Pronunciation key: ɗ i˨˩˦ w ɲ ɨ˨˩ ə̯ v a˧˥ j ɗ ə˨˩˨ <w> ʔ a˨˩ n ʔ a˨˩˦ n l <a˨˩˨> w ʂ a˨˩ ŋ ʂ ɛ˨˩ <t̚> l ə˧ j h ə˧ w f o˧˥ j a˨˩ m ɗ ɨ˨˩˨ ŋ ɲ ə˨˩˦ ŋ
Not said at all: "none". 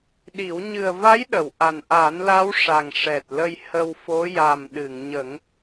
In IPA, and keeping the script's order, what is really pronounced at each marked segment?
w, a˧˥, t̚

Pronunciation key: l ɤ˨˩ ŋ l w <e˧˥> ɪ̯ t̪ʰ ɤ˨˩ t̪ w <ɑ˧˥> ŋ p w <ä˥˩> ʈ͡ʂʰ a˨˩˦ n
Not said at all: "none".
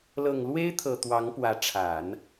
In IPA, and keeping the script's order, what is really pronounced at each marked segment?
e˥, ɑ˧˥, ä˧˥

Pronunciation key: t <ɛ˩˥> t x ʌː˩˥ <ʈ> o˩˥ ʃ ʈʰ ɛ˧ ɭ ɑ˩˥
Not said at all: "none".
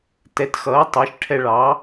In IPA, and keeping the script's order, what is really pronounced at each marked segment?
ɛ˩˥, tˤ

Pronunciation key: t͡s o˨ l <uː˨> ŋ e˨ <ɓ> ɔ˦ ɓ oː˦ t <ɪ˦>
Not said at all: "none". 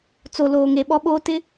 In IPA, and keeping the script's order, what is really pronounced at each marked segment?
oː˨, ɓ, ɪ˦

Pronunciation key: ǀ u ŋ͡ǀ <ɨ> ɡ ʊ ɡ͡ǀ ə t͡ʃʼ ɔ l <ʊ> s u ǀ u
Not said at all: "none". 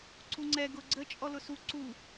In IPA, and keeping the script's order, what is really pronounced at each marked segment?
ɛ, ʊ

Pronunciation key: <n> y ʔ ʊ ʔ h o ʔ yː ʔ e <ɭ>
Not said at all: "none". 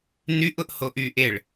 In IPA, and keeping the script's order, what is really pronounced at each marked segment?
n, ɭ

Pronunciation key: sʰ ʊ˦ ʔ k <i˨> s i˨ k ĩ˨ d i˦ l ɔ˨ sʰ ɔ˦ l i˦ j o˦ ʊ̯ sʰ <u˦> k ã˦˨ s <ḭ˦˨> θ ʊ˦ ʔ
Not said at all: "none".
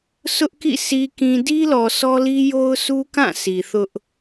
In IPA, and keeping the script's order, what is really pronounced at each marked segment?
ḭ˦˨, u˦, i˨

